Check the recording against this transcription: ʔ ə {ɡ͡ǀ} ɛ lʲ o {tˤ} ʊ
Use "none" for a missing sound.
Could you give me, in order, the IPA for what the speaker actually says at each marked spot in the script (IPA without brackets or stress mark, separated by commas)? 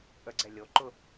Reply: ɡ͡ǀ, ǃ